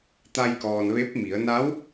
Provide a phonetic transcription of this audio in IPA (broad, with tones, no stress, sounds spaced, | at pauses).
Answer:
t̪ a˧ j k ɔː˩ n ʋ e˧˥ p̚ m i˩˧ ə̯ n a˧˥ w